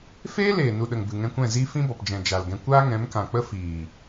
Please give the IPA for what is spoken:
f eː˦ l eː˨ n u˨ ɗ ə˨ ŋ b ɨ˨ ŋ ɛ̃˧ kʷ ɛ̃˦˨ z iː˦ f ĩ˦ b ɔ˨ p d͡ʒ ɛ̃˨ d͡ʒ a˨ l ɡ ɛ̃˧ kʷ aː˦ ŋ ɛ̃˨˦ m k ã˨ k͡p ə˦ f iː˨

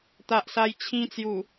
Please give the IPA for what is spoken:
t̪ a˨ ʔ s a˧ j t͡ɕʰ ĩ˧ t͡s j u˨˩

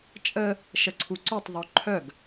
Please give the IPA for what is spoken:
t͡ʃʼ ə | ʃ ə ǀʰ u ǀ œ tˤ ðˤ o ǃʰ œ ɡ

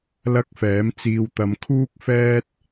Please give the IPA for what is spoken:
l ɐ˥ k̚ f ɛː˨˥ m t͡s iː˧ w t̪ ɐ˧ m kʰ uː˥ k̚ f ɛː˥ t̚

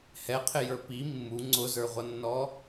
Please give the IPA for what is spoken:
h ɛ qʰ ɪ j ə˞ p i mː u ŋ͡ǀ ʊ z ə˞ ʁʷ ʌ nː ɔ

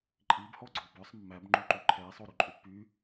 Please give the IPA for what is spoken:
ǃʼ i b h ɔ ɡ͡ǀ ɔ b œ sˤ mː æ b ŋ͡ǃ u ǃ y ǃʰ ɛ sˤ o ɾ ʉ ǃʼ y pː y

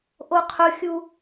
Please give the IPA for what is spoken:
ʔ o qʰ ʊ xʲ u

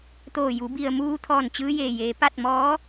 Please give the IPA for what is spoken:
t̪ oː˧˩ j u˩˧ b i˩ ə̯ m uː˧ t̪ʰ ɔː˧˩ n t͡ɕ ɯː˧ j eː˧˩ j eː˩˧ p a˥˨ t̚ m ɔː˧˥

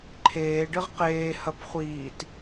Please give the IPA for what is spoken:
ǃʰ eː ɖ ɨ ʁ q eː h ɐ p χʷ iː t

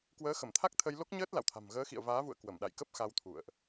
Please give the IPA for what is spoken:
k w əː˨˦ x ə˧˩ m t̪ʰ a˦˥ k̚ t̪ʰ ə˧ j l o˦˥ k̚ ɲ əː˦˥ t̚ l a̰˧˨ w t̪ʰ a̤˨˩ m ɣ əː˨˦ x ḭ˧˨ ə̯ v aː˨˦ v ṵ˧˨ ə̯ k w ə˧˩ m ɗ a̰˧˨ j k ə˦˥ p̚ x a˧ w t̪ʰ ṵ˧˨ ə̯ ʔ

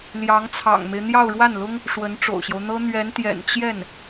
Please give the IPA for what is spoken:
l j ɑ˧˥ ŋ t͡sʰ ɑ̰˨˩ ŋ m e˦ ɪ̯ n̪ j ɑ˥˧ ʊ̯ ɻ w a˥˩ n l ʊ˥ ŋ | ʂ w ə˧˥ n ʈ͡ʂ o̰˨˩ ʊ̯ ɕ j o˦ ʊ̯ n̪ ɤ˥ n̪ ɥ ɛ˧˥ n t̪ j ɛ̰˨˩ n t͡ɕ j ɛ˥˩ n

